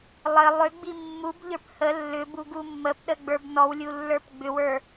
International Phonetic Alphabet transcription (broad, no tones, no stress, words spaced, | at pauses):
lˠə lˠʏɡ͡bi mːubʎə˞p hə lːʏbu ɡumːəpɗə ɡ͡bə˞bnɔwlʲu lːə˞pɡ͡bʏwə˞